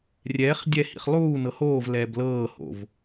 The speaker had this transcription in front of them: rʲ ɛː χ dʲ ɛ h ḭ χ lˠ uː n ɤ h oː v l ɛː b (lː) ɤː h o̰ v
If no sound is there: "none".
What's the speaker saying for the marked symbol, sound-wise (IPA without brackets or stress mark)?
l